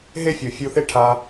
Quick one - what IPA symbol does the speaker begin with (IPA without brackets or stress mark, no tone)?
ɦ